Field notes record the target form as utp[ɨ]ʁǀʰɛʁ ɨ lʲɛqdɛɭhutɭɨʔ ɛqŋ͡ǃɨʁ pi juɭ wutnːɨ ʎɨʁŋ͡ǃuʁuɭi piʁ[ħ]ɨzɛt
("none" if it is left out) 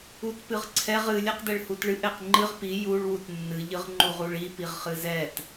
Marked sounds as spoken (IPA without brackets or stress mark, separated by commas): ɨ, χ